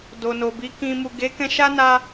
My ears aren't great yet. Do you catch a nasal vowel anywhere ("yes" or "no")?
yes